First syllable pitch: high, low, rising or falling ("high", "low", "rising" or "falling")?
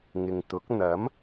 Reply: low